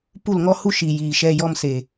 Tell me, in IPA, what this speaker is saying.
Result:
pu˦˨lŋɔ˦hu˦ ʃi˨ jiː˨ʃɛ˧ jɔ˦mse˨

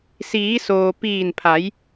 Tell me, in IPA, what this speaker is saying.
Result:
siː˩˧soː˩ piː˧˩npʰa˩˧j

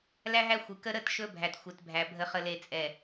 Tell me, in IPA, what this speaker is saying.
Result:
læ˦ɦæ˦ xʷɨ˨kə˦ ɾə˦˨t ʃɵ˦bʱæ˨t xʷe˨tbʱæ˨ bʱə˨χə˨le˨t͡sʼɛ˨

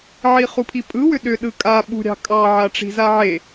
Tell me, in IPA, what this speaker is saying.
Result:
ʕiχupʰipʼɯ wʏɗʏ ɗɯkʼa ɓṳɾʲɑ̤kʼɑ ʕaʈ͡ʂi̤zaʕe

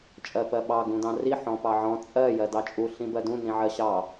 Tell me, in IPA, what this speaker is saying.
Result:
t͡ʃʼɜpɜɓɑ ɡũdɑ̃ri ħɔ̃pɑʕɔ̃ t͡sʼɜ jɜdɑt͡ʃʼu ɬĩbɜdũ nĩʕɜɕɑ

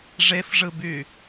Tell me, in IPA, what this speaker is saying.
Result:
ʐefʐɯby

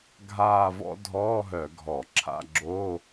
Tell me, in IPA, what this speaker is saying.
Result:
ɡʱaː˥˧vɔ̰˥ dʱɔː˧˥˧ɦœ˧˩˧ ɡʱɔ˧˩˧ ǁʰa̰˧˥˧ɡ͡ǁoː˧˥˧

